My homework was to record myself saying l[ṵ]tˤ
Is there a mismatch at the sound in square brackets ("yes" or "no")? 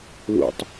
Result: no